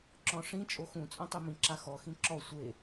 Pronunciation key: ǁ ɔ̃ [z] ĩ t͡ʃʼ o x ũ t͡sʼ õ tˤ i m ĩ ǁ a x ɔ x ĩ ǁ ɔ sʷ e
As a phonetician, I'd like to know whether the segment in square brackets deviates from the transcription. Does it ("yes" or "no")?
yes